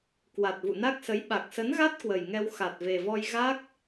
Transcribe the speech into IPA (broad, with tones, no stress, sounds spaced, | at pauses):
k w a˨˩ t̚ v ṵ˧˨ n a˦˥ k̚ s ə˨˦ j ɓ a˨˩ k̚ s ə˨˦ n ɣ a˦˥ t̚ k w ə˨˩ j ŋ ɛ˧ w x a˨˩ t̚ v e˨˩ v ɔ˧ j ɣ a˦˥ k̚